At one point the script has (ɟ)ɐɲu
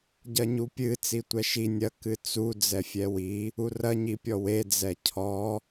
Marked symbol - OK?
yes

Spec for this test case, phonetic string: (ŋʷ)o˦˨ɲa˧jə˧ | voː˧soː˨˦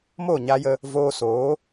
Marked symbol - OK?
no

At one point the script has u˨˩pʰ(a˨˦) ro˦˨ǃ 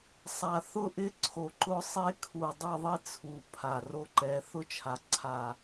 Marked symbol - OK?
no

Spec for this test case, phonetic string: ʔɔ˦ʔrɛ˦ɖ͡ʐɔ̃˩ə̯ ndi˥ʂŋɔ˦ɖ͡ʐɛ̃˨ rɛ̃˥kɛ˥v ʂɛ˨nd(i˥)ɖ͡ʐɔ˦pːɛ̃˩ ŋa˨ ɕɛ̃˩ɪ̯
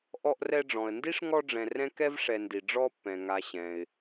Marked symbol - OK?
no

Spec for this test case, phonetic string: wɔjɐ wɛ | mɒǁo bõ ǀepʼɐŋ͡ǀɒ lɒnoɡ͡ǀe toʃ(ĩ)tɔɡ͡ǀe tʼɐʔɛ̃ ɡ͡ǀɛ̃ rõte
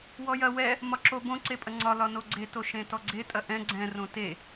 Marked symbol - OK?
no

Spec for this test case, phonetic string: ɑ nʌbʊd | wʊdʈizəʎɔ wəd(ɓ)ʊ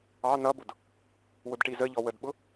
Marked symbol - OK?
yes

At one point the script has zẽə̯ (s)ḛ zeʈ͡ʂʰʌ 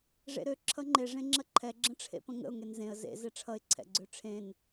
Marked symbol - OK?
no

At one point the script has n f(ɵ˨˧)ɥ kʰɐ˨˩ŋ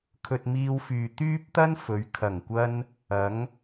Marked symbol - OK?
yes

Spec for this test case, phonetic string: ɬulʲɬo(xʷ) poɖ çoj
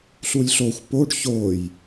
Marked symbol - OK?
yes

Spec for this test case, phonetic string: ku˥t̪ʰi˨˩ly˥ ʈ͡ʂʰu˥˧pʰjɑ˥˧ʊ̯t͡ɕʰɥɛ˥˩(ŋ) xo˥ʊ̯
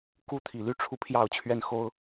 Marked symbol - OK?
no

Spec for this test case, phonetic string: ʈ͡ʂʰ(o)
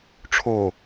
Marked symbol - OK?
yes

